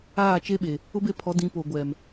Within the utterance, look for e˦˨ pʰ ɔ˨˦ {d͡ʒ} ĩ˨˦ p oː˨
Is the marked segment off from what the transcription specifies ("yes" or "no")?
yes